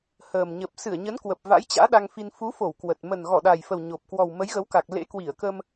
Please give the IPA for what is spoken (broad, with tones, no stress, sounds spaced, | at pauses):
h əː˨˩ m ɲ ə˨˩ p̚ s ɨ˧˩ ə̯ ɲ ə˨˦ n k w ə˨˩ p̚ v a̰˧˥ j t͡ɕ a̰ː˧˥ ɗ a˧ ŋ f i˧ n f u˨˦ f o˧˩ w k w ə˨˩ t̚ m ə˨˩ n ɣ ɔ˧˩ ɗ a˨˩ j f ə˨˩ w ɲ o˨˩ p̚ k w ɔ˨˩ w m ə˨˦ j ɣ ə˨˦ w k a˨˩ k̚ l ḛ˧˥ k w i˧˩ ə̯ k ə˧ m